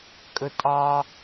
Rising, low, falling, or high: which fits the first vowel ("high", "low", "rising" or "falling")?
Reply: low